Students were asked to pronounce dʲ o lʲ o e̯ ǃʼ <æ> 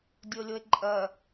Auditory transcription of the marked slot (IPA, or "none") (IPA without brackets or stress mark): ɜ